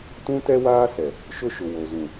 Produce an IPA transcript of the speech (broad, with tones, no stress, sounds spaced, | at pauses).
t ũ˦ t ɛ˦ w aː˦ s ɛ˨ | ʃ ʊ˦ ʃ ʊ˨ w o˨ z ũ˨